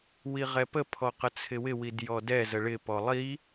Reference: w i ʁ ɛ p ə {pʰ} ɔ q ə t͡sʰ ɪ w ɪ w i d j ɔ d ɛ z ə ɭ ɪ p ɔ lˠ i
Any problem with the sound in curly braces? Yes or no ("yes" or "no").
no